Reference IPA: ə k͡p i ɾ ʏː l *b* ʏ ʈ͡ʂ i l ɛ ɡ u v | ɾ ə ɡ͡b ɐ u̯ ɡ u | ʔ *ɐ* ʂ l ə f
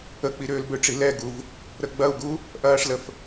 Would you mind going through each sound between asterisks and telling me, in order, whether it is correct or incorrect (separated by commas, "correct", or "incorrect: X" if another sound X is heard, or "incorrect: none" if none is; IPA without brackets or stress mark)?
correct, incorrect: ɐː